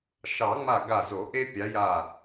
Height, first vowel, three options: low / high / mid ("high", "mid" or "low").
low